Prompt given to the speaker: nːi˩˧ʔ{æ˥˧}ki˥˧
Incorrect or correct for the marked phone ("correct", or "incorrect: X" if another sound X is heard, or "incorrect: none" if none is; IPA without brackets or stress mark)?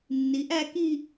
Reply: correct